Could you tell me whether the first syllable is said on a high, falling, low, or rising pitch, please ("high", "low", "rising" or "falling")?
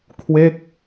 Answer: falling